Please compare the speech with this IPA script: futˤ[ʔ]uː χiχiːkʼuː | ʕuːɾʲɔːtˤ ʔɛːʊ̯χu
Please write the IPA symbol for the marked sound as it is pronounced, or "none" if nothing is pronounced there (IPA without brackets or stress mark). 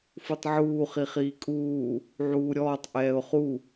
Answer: ʕ